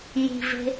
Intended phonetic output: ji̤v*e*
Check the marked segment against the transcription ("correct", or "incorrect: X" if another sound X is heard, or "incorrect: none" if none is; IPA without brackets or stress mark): incorrect: e̤